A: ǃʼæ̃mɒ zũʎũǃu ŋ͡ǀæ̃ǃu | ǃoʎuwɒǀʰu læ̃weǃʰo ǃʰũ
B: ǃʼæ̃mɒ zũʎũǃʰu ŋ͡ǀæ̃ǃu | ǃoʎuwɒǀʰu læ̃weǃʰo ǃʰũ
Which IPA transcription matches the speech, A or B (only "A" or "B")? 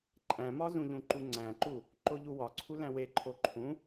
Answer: A